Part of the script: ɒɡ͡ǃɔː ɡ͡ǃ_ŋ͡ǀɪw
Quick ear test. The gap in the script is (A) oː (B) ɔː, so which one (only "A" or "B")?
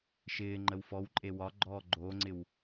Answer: A